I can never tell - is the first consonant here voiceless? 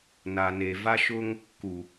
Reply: no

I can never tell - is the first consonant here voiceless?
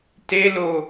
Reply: yes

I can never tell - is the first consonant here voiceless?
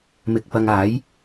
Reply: no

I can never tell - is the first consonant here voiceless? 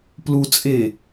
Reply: yes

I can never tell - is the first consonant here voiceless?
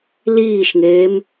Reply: no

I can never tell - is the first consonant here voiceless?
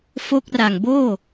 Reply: yes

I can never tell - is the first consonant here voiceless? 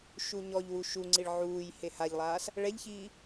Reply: yes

